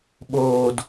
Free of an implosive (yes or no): no